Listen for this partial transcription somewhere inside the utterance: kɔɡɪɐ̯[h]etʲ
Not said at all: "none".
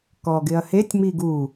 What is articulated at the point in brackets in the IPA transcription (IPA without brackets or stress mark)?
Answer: h